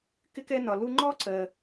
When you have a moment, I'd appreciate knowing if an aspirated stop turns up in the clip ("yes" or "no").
no